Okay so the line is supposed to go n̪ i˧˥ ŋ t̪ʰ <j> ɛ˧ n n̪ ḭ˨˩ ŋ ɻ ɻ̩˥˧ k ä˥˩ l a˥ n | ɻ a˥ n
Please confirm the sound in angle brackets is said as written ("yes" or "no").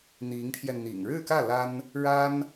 yes